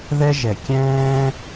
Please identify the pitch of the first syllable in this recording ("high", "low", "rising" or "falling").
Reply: high